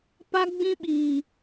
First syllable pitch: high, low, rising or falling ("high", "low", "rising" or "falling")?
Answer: high